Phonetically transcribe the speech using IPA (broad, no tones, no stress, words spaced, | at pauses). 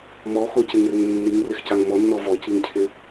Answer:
mɔxocɪŋrɪŋ nːiŋrɪxcaŋ mɔnːɔ vɔciŋcʰɪ